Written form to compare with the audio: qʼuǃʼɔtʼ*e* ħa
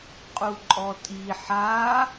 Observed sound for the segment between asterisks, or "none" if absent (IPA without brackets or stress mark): i